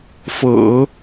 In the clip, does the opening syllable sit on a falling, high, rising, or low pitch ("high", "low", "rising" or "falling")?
low